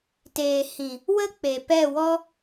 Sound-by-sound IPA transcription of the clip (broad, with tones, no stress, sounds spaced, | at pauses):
t eː˨ h ĩ˨ | w ə˧ k͡p e˨ p ɛ˦˨ w ɔ˦